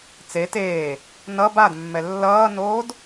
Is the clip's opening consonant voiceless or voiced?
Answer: voiceless